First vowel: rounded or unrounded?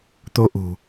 rounded